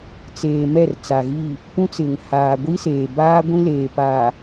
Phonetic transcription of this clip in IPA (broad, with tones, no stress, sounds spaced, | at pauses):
t͡s eː˨ m ɛ˦˨ r t͡s a˨ ɣ i˦˨ | p ũ˦ t͡s ɪ˨ ŋ h aː˨ ɡʷ i˦ s eː˨ b aː˦ ɡʷ ĩ˦ l eː˨ p aː˨